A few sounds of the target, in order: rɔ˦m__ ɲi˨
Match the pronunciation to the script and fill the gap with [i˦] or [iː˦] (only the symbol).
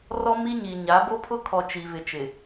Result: i˦